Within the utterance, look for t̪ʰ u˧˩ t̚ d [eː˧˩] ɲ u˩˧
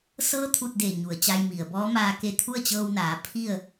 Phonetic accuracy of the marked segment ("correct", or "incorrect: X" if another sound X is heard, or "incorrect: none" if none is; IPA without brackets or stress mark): correct